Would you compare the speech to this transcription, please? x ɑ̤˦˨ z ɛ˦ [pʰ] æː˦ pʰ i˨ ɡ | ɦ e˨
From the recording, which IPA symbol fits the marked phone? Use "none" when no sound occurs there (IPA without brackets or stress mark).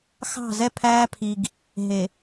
pʰ